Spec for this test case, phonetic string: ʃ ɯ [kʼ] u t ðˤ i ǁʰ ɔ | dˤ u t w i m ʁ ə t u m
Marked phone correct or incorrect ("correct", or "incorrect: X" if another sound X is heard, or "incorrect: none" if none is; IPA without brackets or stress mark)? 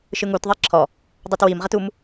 incorrect: ŋ